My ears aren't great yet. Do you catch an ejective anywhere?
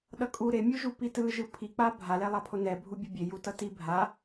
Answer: yes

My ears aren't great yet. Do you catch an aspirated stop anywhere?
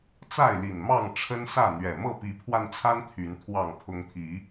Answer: yes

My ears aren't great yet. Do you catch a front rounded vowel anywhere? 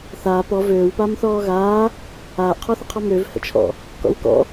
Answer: yes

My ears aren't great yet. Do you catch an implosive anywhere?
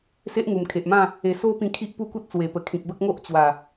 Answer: no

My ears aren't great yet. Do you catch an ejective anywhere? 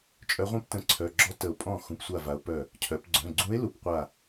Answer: yes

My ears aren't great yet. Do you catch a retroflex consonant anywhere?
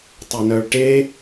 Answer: yes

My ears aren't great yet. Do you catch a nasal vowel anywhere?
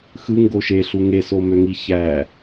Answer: no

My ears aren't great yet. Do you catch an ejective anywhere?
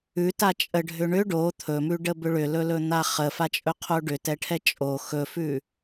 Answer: yes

